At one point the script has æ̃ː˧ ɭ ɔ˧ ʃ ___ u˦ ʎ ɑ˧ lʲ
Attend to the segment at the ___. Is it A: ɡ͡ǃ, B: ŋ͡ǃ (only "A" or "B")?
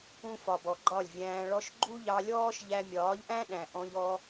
A